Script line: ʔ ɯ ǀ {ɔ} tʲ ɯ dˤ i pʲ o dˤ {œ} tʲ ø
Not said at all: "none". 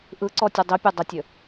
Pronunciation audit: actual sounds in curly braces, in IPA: ɔ, ə

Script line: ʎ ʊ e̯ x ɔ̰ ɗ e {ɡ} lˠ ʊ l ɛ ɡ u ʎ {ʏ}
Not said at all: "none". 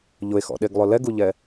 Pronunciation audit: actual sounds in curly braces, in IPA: ɡ, ɛ

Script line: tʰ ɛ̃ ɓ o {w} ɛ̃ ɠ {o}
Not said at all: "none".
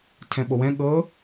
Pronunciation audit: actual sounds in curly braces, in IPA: w, ɤ

